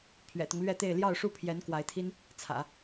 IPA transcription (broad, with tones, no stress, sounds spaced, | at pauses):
pʰ ɥ ɛ̰˨˩ t̪ ʊ˦ ŋ l ɥ ɛ˥˧ t̪ e˥˧ ɪ̯ l j ɑ˥˧ ʊ̯ ʂ u˥˩ pʰ j ɛ˧˥ n k w a˧˥ ɪ̯ t̪ʰ i˥ n | t͡sʰ ä̰˨˩˦